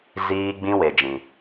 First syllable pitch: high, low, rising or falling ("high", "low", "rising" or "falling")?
high